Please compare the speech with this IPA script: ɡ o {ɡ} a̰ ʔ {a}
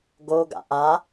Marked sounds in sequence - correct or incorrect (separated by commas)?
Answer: correct, correct